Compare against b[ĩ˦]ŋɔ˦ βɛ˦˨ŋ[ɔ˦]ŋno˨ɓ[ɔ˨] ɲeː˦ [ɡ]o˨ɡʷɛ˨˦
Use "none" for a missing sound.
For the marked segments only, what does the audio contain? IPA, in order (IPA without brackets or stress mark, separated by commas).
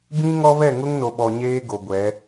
ĩ˦, ʊ˦, ɔ˨, ɡ